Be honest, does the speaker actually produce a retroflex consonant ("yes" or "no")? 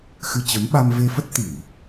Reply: no